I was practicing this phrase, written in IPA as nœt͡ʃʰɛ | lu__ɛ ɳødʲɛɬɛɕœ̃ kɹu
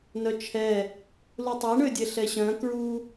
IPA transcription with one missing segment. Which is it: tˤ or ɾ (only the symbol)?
tˤ